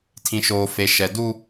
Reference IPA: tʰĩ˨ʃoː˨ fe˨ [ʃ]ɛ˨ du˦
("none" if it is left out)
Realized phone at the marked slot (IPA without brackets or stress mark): ʃ